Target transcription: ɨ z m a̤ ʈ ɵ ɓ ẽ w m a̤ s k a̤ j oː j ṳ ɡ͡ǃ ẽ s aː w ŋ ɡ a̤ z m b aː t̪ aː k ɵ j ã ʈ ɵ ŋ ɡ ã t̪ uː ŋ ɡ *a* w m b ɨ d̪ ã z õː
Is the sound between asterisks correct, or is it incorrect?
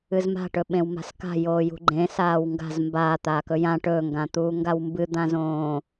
correct